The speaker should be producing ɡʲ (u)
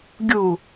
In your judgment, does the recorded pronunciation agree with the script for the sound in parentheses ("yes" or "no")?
yes